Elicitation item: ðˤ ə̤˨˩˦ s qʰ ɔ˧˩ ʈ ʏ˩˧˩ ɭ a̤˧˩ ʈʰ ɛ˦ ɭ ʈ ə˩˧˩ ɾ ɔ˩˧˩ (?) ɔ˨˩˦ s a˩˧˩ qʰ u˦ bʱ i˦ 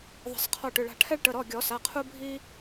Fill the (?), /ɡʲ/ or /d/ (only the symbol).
ɡʲ